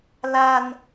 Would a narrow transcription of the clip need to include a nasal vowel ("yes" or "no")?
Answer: no